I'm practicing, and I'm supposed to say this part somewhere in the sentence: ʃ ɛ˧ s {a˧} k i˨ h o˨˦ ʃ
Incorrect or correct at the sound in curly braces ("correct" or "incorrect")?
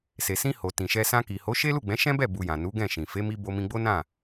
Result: incorrect